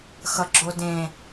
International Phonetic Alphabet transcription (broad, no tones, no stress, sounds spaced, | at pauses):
x ʌ ɡ͡ǁ o d ẽ